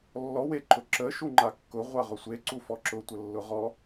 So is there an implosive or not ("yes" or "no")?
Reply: no